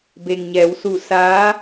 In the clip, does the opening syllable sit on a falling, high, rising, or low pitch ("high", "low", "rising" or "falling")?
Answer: low